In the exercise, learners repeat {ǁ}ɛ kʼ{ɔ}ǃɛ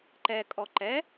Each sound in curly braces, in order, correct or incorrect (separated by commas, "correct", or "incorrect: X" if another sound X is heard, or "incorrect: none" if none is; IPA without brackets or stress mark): incorrect: ǃ, correct